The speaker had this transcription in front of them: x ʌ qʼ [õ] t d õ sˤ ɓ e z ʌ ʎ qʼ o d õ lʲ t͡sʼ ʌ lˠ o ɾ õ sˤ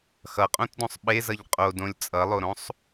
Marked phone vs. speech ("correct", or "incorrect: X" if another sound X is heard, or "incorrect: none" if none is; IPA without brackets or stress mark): correct